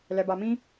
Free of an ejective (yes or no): yes